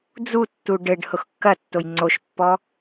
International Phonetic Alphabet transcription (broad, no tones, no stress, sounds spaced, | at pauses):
d͡z u tː u ɖ ɘ ɖ h ʊ x kː ɐ tː o j ŋ͡ǀ o ʃ pː ɔ